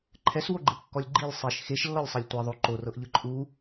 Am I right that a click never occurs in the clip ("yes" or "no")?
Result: no